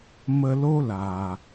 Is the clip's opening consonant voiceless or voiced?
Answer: voiced